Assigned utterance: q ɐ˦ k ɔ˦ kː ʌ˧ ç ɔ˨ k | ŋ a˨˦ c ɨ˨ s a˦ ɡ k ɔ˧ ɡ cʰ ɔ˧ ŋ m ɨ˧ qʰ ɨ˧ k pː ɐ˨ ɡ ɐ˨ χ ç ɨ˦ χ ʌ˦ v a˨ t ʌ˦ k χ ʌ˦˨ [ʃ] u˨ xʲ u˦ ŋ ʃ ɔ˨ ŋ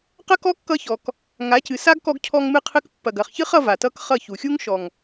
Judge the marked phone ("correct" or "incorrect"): incorrect